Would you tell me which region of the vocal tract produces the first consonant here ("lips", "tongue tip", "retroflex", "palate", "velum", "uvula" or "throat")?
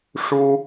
retroflex